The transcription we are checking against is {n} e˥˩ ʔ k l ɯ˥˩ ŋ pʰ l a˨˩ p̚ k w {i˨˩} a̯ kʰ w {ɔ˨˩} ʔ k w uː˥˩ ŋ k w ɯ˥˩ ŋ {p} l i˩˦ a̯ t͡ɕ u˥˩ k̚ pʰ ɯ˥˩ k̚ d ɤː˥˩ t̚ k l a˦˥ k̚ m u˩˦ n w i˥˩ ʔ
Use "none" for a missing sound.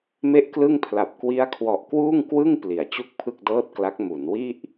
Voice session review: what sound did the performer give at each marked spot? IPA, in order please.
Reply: m, i˦˥, ɔ˨˩, p

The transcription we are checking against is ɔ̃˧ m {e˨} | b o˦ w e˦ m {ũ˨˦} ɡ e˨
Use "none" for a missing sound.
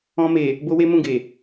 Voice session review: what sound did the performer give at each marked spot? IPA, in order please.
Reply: e˨, ũ˦˨

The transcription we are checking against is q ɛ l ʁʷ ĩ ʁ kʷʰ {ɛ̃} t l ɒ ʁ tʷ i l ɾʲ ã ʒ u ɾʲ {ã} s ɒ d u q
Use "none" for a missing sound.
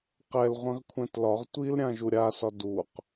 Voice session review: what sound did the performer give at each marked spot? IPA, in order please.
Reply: ɛ̃, a

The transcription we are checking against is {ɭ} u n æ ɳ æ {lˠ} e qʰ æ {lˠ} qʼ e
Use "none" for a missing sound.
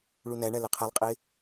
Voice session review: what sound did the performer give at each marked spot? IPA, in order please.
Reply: ɭ, l, lˠ

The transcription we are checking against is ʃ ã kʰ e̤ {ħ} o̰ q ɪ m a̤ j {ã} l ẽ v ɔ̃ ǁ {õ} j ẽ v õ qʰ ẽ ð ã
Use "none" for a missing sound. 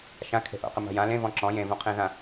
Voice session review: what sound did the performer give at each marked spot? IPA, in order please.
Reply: ʔ, ã, ɔ̃

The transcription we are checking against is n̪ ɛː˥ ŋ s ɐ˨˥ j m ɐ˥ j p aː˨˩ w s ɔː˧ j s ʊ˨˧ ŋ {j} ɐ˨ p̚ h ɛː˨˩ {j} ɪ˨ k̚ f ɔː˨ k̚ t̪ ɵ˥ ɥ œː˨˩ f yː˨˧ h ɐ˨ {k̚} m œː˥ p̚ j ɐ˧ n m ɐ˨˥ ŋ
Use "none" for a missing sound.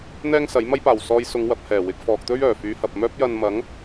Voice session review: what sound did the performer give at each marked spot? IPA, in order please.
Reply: w, w, p̚

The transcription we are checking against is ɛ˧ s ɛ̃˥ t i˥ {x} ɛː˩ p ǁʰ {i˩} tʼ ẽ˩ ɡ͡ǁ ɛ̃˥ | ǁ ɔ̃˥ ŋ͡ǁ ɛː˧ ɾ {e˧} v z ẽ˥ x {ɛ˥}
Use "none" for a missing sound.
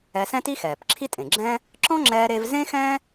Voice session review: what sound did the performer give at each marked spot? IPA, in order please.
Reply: x, i˥, e˧, ɛ̃˥

